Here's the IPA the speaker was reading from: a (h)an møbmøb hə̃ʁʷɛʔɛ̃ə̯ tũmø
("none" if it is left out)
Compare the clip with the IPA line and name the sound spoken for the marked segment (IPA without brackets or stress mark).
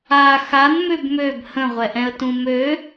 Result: x